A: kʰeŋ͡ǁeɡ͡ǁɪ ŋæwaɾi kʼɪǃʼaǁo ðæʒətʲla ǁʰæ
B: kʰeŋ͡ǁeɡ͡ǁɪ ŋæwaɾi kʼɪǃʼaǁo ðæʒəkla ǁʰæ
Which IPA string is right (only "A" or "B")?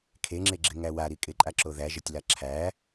A